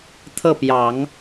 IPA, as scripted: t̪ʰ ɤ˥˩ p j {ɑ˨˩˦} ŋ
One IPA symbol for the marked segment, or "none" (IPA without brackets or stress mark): ɑ˨˩˦